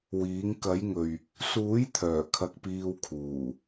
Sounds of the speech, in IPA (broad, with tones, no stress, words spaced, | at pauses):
wiː˨˥ŋ kɐ˨˥jŋɵ˨ɥ | suː˨˥jt̪ʰœː˨˩ kʰɐ˧k̚piː˧wkʰuː˨˩